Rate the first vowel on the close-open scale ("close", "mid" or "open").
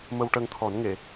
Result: mid